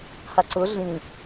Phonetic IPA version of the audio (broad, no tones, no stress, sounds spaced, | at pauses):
h a ǀ ʊ ɮ ĩ